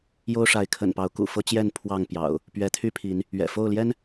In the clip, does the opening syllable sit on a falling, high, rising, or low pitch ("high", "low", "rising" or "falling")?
high